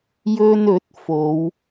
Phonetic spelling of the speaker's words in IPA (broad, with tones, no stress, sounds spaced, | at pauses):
j ɵ˧ n ɵ˨˥ t̚ f o˨˧ w